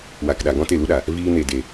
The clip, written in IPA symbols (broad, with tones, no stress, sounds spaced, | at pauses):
w a˨ k ɗ a˨ ɡ ɔ̃˦ t e˦˨ l u˦ ɗ a˨ | v iː˧ n e˨ d e˨